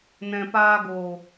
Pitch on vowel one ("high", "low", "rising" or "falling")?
low